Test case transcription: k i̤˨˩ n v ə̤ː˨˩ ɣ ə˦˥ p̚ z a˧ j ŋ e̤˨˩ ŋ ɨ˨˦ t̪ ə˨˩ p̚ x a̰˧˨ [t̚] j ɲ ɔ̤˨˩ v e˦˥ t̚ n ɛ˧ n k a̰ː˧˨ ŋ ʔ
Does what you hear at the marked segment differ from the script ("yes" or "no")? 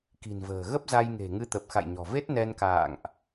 yes